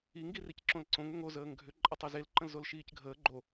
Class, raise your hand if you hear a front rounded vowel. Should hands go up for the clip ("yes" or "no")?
yes